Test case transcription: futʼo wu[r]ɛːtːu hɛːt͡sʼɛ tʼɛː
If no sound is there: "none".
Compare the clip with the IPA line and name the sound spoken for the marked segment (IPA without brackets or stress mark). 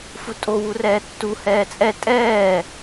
r